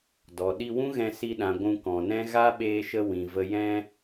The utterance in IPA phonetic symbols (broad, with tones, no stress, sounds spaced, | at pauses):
d ɔ˨ ɗ i˧ w ũ˦ ɣ ɛ̃˧ s i˧ ɗ ã˨ ɡʷ ũ˧ k ɔ̃˨ n ɛ̃˦ ɣ a˦ ɓ eː˧ ʃ ə˧ w ĩ˨ v ə˧ j ɛ̃˧